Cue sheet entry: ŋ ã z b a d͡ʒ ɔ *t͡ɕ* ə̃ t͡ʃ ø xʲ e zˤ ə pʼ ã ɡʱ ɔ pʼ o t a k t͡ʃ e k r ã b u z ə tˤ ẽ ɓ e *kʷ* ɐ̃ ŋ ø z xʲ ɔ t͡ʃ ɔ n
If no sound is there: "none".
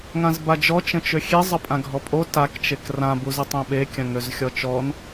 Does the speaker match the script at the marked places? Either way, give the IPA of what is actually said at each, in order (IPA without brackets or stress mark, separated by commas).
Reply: t͡ʃ, kʲ